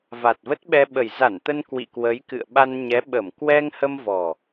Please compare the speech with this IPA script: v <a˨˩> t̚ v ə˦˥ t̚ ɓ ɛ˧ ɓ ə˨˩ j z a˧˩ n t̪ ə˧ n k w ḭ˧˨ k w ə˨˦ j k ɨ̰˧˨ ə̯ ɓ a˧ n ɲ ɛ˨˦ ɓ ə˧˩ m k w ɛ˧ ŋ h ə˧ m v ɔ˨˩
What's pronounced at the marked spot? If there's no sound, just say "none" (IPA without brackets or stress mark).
a˨˩